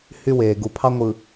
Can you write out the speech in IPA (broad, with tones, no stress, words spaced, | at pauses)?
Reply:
hy˦weː˨ ɡu˨pʰɑ˦ŋʷɯ˨